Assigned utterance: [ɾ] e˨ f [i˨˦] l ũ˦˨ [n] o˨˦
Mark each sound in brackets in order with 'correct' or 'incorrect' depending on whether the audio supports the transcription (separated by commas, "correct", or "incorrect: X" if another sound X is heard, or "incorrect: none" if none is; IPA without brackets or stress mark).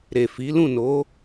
correct, correct, correct